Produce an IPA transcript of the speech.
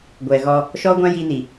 ɡʷɛ˨ɣɔ˦ | ʃɔ˦ɡʷã˦ ji˦ni˨

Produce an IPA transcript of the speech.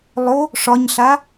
lˠo | ʂɒɲɬa

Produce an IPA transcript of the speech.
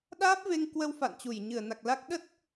ɗaː˦˥p̚ ve˧ŋkwə˧w fa̰˧˨nt͡ɕu˧˩j ɲɨ˧˩ə̯na˨˩k̚la˦˥k̚ ɗə˦˥t̚

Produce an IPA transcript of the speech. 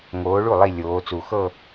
ŋoː˨˦ɭu˥˩ lˠi˥˧lʲoː˨˦ t͡su˨˩xɤ˥˧

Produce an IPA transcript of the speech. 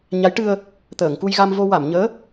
ɲa˧˥jʈɨ˧ə̯ | t̪əː˨˩˨ŋku˧jɣa˧mvo˧ wa˨˩˨mɲəː˧˥

